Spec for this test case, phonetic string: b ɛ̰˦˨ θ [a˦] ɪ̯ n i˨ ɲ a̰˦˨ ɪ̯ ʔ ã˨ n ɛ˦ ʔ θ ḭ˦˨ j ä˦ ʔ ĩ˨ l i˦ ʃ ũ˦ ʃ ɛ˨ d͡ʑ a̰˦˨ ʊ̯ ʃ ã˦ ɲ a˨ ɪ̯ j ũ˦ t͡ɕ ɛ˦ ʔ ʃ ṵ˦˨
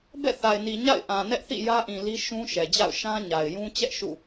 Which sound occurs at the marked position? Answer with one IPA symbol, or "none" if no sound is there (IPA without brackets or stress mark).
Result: a˨